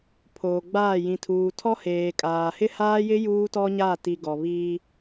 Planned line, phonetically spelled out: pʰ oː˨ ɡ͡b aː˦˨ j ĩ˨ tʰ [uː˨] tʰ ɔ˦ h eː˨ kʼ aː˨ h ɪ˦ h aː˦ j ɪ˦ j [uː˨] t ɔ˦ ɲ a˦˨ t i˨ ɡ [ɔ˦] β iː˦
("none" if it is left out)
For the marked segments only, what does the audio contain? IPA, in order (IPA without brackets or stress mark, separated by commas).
uː˨, uː˦, ɔ˨